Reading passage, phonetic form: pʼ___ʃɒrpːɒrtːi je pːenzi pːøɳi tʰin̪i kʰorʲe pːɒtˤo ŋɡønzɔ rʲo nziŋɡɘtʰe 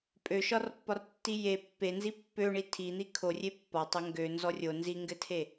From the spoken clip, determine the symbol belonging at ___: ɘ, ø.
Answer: ø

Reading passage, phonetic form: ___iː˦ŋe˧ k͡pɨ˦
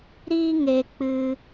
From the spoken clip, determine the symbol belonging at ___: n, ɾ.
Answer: ɾ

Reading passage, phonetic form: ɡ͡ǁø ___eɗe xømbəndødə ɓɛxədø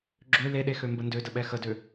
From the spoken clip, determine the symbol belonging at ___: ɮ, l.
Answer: l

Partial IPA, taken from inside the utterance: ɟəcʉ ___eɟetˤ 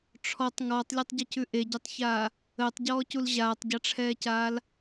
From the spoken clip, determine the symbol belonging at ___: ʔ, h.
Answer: ʔ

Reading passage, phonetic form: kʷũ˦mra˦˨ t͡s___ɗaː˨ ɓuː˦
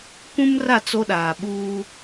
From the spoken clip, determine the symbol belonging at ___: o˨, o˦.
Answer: o˦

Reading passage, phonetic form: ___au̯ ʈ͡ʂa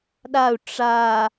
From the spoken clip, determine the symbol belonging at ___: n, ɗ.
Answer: ɗ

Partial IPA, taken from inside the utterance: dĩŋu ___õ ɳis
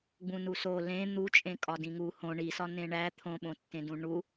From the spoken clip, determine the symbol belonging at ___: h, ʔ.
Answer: h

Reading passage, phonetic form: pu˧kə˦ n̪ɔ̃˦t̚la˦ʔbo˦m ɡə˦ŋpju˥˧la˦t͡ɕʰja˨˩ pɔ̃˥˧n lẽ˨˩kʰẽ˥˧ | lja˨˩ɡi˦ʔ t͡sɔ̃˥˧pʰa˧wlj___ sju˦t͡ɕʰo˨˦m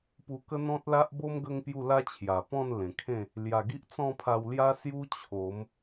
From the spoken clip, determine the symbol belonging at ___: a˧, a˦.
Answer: a˦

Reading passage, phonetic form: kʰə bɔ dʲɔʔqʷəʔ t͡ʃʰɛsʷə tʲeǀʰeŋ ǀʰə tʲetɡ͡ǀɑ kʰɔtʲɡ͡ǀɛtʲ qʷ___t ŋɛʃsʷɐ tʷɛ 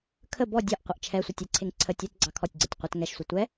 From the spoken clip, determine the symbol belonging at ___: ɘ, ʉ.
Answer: ɘ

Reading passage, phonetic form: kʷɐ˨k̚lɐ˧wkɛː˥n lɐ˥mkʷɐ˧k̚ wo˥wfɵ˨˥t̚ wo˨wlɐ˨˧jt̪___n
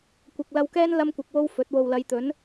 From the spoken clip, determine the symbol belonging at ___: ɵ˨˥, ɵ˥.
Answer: ɵ˨˥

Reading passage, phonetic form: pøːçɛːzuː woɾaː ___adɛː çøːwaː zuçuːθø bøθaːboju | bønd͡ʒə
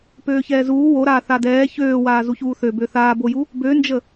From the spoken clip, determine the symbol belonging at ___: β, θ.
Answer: θ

